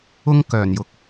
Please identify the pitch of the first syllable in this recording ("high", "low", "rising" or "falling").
high